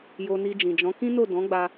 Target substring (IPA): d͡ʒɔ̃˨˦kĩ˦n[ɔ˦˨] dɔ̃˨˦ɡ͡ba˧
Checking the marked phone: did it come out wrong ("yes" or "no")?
yes